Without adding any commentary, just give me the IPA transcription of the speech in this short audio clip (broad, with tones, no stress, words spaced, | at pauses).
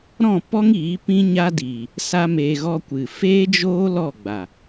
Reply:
ɾɔ̃˦˨pɔ˦ŋiː˨˦ pĩ˦ɲa˦diː˨ | sa˦meː˧ ɣɔ˧kʷɨ˨feː˦d͡ʒoː˦ lɔ˦˨ɡ͡ba˨